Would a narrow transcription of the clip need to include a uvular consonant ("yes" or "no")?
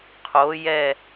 yes